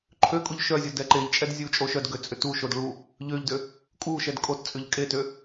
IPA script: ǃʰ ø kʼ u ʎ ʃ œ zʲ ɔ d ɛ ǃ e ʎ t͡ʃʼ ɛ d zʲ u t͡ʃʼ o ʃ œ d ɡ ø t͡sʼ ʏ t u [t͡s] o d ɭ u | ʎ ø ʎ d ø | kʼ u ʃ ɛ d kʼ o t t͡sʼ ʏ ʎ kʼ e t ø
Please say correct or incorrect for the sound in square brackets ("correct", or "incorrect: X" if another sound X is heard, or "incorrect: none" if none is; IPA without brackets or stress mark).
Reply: incorrect: ʃ